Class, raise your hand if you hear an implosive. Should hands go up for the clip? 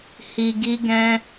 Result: no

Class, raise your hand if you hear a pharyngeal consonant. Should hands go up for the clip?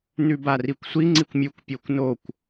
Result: no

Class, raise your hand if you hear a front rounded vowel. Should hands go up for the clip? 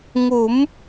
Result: no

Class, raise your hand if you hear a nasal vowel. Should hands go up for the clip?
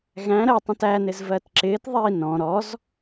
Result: yes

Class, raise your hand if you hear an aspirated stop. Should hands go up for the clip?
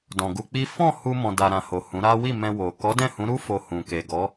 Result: no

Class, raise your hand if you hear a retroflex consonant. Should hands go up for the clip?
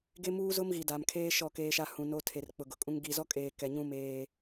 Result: no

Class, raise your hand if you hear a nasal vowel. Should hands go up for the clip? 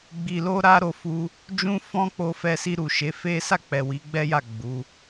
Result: yes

